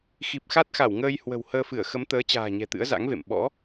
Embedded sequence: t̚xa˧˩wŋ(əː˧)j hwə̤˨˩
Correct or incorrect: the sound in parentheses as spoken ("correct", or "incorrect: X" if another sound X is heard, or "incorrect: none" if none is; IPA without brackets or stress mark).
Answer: correct